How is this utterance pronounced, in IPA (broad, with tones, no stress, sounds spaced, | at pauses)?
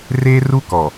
r eː˦ r u˦ k ɔ˨